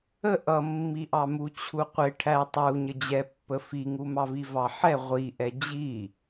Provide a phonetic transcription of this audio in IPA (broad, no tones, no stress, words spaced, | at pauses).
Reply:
ə ʔʌmːiʔɑ mut͡ɕʰuqʷɪ ʈʰæ tˤu ɲəd͡ʑɛpːə fiŋumɑvi vɑħɛ ʁʷiʔɛ d͡ʑi